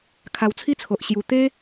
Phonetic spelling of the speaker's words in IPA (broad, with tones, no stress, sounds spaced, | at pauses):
kʰ a˧ w t͡sʰ i˥˧ t͡sʰ o˨ ʔ ɕ j u˧ t̪ e˦